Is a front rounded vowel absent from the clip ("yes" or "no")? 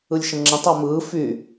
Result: no